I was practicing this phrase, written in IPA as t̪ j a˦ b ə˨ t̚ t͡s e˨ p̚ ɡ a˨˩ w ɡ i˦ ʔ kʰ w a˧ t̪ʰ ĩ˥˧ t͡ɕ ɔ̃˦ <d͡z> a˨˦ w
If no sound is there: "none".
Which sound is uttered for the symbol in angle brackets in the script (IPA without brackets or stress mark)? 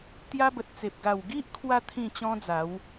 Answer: d͡z